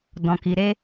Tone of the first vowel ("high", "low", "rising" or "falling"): low